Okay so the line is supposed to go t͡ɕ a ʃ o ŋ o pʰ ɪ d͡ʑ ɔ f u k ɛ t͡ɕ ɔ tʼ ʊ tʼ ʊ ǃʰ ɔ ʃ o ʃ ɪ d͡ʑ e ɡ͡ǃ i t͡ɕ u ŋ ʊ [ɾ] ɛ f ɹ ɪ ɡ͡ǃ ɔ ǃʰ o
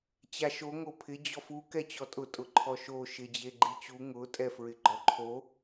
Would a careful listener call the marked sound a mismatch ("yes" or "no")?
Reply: yes